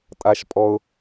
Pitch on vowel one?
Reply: high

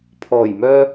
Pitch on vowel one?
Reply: low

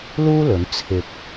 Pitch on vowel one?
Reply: high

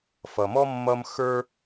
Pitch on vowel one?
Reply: low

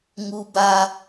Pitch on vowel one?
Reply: high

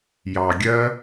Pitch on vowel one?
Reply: low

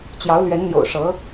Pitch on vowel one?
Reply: rising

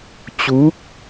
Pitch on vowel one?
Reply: rising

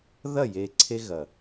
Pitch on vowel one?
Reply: falling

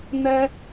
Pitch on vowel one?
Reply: high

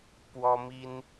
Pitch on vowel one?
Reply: high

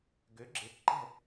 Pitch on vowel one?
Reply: rising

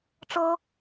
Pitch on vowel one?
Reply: high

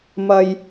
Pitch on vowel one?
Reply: low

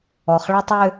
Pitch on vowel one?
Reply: low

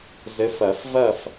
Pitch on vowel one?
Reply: rising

